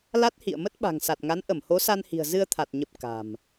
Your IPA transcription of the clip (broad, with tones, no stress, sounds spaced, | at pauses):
l a˦˥ t̚ h ḭ˧˨ ə̯ m ə˦˥ t̚ ɓ a̤˨˩ ŋ s a˨˩ t̚ ŋ a˨˦ n ʔ ə˧˩ m h o˨˦ s a˧ n h i̤˨˩ ə̯ z ɨ˧ ə̯ t̪ʰ a˨˩ t̚ ɲ ə˨˩ p̚ k a̤˨˩ m